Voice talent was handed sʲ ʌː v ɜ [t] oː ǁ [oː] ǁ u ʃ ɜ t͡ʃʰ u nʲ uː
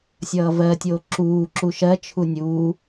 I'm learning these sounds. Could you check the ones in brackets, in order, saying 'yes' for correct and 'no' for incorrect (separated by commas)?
no, no